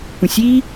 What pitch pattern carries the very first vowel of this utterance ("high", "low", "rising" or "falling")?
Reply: low